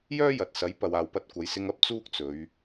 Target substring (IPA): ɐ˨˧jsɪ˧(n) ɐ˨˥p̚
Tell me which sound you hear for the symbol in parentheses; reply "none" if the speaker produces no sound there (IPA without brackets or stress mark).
ŋ